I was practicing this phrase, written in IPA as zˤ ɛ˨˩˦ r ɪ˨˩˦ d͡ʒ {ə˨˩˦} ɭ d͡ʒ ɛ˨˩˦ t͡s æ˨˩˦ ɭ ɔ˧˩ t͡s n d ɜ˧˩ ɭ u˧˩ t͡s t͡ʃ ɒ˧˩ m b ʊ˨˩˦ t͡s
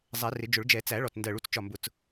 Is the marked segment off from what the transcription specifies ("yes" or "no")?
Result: yes